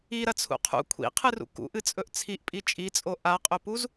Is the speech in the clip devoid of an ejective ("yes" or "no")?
no